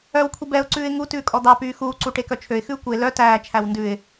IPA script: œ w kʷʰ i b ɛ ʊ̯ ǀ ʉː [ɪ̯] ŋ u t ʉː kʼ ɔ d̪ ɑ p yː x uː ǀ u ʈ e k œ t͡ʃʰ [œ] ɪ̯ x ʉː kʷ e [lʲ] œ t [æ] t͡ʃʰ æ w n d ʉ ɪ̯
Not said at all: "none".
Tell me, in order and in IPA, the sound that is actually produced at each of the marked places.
ɪ̯, ø, l, æː

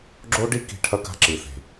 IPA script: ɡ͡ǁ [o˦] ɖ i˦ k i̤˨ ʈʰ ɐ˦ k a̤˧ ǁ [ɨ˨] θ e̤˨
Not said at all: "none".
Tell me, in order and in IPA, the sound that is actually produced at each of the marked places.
o˦, ɨ˨

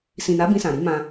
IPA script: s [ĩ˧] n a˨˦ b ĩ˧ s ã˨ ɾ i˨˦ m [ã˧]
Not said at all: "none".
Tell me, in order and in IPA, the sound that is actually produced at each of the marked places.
ĩ˨, ã˧

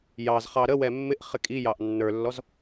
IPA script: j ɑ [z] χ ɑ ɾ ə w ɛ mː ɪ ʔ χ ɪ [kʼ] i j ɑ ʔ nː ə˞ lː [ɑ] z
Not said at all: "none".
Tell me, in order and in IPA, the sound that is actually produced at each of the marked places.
z, kʼ, ɔ

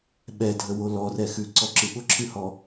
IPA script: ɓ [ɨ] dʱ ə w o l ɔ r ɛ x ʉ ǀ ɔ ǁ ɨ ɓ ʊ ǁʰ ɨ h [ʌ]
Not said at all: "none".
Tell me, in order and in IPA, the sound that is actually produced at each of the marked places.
ɛ, ɔ

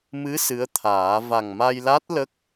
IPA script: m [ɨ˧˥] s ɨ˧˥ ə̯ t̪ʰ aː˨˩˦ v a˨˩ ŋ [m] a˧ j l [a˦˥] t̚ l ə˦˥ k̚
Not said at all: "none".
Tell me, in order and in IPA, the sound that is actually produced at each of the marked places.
ɨ˧˥, m, a˦˥

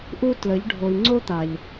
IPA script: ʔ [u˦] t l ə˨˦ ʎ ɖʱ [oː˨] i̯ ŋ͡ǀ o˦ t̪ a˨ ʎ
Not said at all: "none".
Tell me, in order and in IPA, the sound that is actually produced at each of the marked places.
u˦, o˨

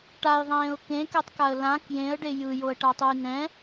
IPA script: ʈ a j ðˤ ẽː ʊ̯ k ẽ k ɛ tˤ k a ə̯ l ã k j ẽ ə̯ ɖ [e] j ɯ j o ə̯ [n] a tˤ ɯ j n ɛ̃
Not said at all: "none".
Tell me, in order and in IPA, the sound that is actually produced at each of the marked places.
e, ʈ

